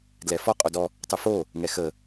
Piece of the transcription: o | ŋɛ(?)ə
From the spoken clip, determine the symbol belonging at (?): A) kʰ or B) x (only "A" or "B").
B